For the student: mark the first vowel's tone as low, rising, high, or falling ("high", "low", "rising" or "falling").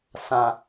low